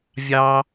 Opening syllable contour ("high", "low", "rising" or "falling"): high